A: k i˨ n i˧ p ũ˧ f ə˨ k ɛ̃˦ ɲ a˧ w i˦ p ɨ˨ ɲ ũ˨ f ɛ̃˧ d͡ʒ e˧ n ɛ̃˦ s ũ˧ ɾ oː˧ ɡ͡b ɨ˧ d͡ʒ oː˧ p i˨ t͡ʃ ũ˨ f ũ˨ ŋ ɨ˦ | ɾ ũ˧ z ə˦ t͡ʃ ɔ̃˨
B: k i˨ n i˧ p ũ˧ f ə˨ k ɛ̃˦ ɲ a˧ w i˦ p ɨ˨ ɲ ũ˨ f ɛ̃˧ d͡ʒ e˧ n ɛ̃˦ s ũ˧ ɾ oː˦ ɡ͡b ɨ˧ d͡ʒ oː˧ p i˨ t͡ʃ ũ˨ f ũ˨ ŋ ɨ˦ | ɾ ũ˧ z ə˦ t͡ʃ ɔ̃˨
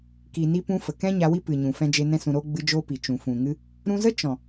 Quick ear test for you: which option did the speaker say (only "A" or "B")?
B